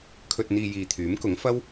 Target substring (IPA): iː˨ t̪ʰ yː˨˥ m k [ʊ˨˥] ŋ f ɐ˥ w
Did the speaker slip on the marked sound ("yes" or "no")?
no